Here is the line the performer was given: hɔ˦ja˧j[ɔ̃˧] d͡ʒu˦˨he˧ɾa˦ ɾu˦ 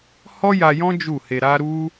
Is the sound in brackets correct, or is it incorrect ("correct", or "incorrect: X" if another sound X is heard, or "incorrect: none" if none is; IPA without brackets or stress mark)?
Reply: incorrect: ɔ̃˦